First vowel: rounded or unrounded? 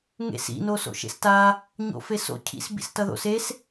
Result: unrounded